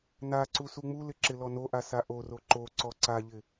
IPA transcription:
n a ǀ u s u ŋ͡m u l ɪ ǁ ɪ l ɔ n o ʔ a s a ʔ o r o ǃ o ǀ ɔ ǀ a ʎ ɪ

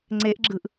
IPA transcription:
ŋ͡ǀ e ʔ ɡ͡ǁ ɯ ʔ

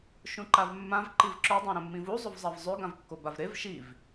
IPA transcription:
ʃ ũ ǃ a v mː ã v ǃ i v ǁ ɵ dˤ ã ɾ ɐ̃ mː ĩ v u zˤ o v zˤ a v zˤ ʉ ɡ ã v kː o b a v ɾ e v ʃ i v

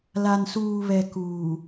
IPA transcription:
l a˨ n s uː˨ β ɛ˨ k uː˨

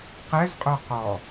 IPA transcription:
q ɛ z qʼ œ q ɔ

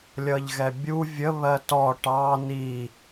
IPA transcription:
lʲ ʌ ʎ ɣ ɛ bʲ u vʲ ə β ɜ t ɔ ʈ ɑ n i

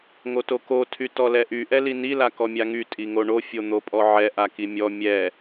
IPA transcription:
ŋ o t o k o tʰ y t ɔ l ɛ ʔ y ʔ ɛ l i n i l a k ɔ mʲ a ŋ y tʼ i ŋ o ɳ o fʲ o n̪ o pʼ ɔ ʕ ɛ ʔ a k i mʲ ɔ mʲ ɛ

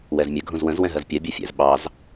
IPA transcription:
w ɛ z mʲ ə ɡʱ ũ z w ə̃ z w ɛ̃ ɦ ɜ z pʲ ɜ bʲ ʌ fʲ ɛ̰ z ɓ ɑ z

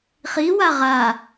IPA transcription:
χ i w a ʁ a

